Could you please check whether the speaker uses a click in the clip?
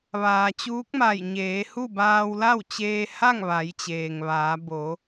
no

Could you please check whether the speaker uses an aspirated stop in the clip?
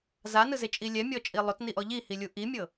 no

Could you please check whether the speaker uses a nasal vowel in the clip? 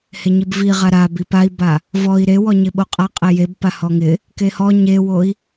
no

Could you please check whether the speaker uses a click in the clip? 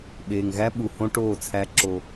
yes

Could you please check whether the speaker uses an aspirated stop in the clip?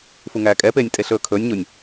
yes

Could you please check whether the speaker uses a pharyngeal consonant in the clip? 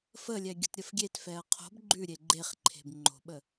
no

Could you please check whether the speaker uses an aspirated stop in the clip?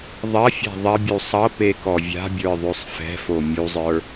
no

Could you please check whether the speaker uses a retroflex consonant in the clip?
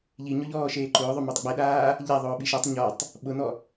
no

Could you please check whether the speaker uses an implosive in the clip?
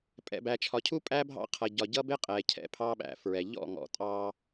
yes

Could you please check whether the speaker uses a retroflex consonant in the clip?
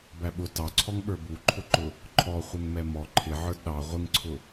no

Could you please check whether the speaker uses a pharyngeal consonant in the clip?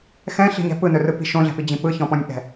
no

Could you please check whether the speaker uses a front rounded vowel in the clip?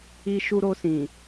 no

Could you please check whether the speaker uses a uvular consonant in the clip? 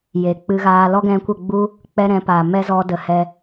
no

